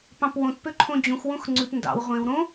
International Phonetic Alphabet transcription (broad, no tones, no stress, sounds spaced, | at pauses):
p ɑ̃ p w õ t p ø ǃʰ õ d͡ʑ ũ x w õ x ŋ͡ǀ ʉ p n d ɑ̰ w ʁʷ ẽ w ɾ õ